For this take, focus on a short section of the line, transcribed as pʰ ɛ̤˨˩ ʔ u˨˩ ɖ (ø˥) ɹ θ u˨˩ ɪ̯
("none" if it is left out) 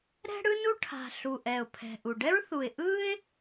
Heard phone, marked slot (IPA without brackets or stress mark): ɛ˥